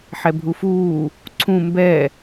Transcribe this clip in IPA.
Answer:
ħ ɛ bʱ u f uː | ǀʰ ũ m b ɛ

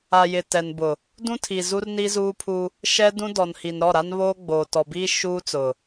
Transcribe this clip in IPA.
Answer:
a˨ j ɪ˨ t ɛ˨ n b ʊ˨ | d ũ˦ tʰ i˨ z u˦ r n i˦ z uː˦ pʰ u˦ | ʃ ɛ˦ d ũ˦ d ɔ˨ n h i˨ n ɾ ɔ˦˨ ɾ a˦ n β oː˦ ɡ͡b oː˨ t ɔ˨ b iː˦ ʃ uː˦ t͡s ʊ˨

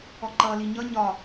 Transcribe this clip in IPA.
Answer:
ɔ ǃ ʌ l i ɲ ʌ ɲ ɒ

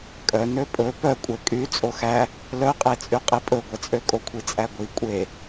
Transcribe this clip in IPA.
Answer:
kʼ œ n ø pʼ ɵ p œ kʷʼ ɛ kʼ y t͡sʼ o x æ | l œ qʼ e t͡sʼ y qʼ i pʼ ɵ ɡʷ ɛ t͡sʼ ø kʼ o kʷʰ i t͡sʼ æ ɡʷ i kʷʼ e

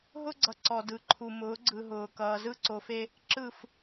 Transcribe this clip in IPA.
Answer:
ɦ ʊ˦ ɡ͡ǀ ʌ˨ ǀ ɔ˨ d ɯ˨ ǃʰ u˨ m ʊː˨˦ ɡ͡ǀ ɯ˨ ɦ ʊː˨ k ʌː˨ z ɯ˦ ǀ o˨ f e˦ | ǁ ɯ˦˨ f

